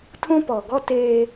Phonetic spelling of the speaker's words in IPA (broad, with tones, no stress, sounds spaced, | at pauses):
tʰ ũ˦ p ɔ˨ ɡ ɔ˦ t eː˦